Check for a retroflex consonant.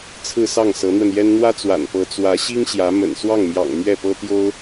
absent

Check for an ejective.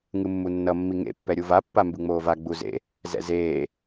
absent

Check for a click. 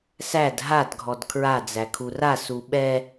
absent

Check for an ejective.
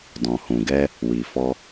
absent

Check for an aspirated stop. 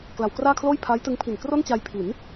present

